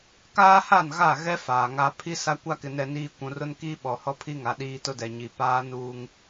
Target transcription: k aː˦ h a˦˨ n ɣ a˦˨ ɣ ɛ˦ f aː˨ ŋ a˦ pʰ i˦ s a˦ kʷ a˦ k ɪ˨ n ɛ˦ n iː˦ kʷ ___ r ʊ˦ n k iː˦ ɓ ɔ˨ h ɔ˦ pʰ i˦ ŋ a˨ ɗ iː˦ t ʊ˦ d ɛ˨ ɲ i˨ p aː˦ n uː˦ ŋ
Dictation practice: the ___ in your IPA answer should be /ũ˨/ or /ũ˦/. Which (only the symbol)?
ũ˨